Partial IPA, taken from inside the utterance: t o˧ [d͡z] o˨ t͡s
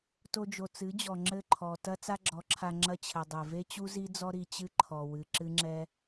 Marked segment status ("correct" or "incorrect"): incorrect